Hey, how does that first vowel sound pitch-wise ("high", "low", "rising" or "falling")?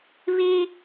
high